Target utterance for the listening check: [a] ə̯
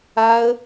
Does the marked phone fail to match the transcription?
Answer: no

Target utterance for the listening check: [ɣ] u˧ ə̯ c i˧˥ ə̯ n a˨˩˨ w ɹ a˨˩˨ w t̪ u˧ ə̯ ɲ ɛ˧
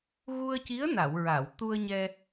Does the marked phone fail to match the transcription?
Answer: no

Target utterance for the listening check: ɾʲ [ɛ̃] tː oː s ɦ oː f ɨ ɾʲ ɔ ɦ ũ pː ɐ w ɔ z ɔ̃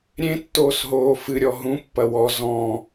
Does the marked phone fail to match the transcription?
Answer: yes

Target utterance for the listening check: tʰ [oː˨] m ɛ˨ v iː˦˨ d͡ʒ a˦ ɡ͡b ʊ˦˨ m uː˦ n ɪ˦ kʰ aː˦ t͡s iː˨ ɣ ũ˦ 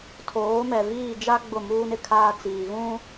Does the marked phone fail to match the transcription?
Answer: yes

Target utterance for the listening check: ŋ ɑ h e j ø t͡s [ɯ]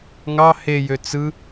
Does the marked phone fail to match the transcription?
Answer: no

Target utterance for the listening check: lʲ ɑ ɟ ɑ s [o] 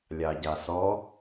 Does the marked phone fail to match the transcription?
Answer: yes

